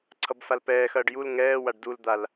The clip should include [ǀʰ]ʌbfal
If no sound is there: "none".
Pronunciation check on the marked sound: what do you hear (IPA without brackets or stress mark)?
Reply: ǀʰ